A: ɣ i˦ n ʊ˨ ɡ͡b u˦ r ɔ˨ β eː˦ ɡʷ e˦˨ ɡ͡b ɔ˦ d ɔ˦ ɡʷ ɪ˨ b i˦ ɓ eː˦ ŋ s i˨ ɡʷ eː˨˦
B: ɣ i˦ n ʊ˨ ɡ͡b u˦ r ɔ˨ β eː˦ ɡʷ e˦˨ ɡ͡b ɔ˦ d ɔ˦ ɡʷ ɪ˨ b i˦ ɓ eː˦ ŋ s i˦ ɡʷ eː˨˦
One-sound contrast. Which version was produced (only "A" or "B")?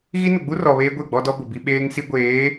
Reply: B